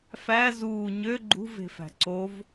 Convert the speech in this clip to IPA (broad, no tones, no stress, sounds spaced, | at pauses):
f æ z uː ɲ ø ɡ͡ǃ ṳ v e̤ f æ̤ ǀ o v